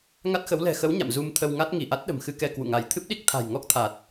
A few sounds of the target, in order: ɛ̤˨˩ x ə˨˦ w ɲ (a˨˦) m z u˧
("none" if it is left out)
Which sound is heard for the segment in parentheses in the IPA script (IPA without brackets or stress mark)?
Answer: a̰˧˨